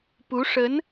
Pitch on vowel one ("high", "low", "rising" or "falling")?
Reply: rising